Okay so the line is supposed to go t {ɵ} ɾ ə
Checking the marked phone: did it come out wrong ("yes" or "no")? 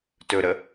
no